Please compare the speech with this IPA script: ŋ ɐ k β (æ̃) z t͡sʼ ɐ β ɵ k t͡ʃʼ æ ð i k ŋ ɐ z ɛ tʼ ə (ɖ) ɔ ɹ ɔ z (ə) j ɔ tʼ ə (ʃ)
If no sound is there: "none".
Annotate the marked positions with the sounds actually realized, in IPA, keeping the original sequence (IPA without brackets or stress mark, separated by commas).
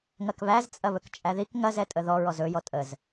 æ, ð, ɵ, z